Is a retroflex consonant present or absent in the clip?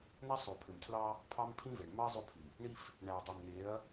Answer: present